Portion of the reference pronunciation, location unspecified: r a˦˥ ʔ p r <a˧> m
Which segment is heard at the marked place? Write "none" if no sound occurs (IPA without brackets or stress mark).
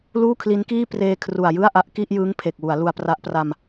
a˧